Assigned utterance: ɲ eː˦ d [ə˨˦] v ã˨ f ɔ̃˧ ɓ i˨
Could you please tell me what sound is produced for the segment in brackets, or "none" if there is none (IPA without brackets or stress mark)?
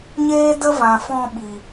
ə˦